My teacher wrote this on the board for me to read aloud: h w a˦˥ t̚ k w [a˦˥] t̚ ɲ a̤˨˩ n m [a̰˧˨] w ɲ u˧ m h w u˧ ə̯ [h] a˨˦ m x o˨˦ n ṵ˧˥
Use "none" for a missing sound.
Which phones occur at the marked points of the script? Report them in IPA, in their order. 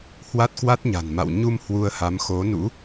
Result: a˦˥, a̰˧˨, h

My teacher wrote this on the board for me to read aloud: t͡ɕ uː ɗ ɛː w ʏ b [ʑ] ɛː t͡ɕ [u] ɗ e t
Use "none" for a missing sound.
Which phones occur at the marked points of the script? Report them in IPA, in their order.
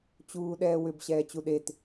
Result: ɕ, u

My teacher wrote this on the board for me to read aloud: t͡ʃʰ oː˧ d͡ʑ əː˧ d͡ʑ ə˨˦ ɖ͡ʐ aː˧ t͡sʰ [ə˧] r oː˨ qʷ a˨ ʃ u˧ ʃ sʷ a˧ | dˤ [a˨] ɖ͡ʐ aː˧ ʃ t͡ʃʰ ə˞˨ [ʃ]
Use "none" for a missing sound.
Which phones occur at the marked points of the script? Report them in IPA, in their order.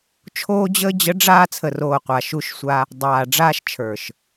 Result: ə˨, aː˨, ʃ

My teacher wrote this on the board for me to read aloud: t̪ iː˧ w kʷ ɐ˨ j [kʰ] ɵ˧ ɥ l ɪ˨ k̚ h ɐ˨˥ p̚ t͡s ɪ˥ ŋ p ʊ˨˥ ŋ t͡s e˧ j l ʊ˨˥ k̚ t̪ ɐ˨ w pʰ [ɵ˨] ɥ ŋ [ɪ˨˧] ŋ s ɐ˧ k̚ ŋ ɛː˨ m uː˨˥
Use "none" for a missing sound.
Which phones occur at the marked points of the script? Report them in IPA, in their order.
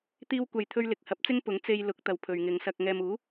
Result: t̪ʰ, ɵ˨, ɪ˨˧

